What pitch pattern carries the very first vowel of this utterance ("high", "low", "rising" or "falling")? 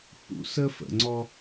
rising